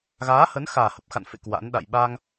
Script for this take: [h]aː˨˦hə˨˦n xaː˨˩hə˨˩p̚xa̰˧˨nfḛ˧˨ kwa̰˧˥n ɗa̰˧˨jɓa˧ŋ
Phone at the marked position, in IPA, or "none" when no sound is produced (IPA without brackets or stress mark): ɣ